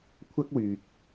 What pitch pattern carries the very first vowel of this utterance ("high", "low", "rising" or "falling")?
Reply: high